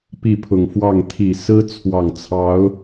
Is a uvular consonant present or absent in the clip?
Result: absent